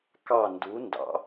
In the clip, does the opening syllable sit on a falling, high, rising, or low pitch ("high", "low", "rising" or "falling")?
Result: falling